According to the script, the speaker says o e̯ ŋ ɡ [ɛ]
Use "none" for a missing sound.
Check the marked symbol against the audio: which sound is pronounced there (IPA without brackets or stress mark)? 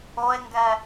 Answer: ɛ